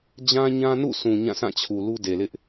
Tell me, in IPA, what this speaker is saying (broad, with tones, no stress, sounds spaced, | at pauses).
d͡ʑ ã˦ ɲ ã˦ n ṵ˦˨ sʰ ũ˨ ɲ ã˦˨ sʰ ã˦˨ t͡ɕʰ u˨ l u˦ d e˨ l ɪ˦ ʔ